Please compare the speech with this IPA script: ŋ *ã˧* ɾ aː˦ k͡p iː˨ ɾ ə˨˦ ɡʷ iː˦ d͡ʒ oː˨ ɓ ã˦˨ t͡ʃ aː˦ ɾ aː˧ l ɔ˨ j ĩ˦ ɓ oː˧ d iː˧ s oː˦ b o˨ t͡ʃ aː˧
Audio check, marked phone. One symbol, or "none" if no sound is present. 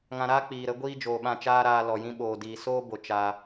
ã˧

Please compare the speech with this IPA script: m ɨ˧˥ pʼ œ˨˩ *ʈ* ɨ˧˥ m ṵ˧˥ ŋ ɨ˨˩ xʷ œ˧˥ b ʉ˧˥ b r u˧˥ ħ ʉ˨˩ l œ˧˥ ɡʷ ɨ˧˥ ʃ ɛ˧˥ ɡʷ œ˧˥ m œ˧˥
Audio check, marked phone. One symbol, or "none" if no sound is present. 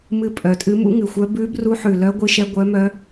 tʼ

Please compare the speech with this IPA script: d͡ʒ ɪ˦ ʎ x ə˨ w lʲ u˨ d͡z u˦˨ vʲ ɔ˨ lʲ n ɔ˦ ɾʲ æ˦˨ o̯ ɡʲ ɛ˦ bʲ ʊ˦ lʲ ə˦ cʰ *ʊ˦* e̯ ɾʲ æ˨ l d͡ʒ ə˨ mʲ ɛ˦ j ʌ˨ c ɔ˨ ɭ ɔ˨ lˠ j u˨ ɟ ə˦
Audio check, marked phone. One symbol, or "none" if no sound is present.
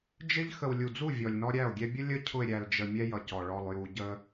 ʊ˨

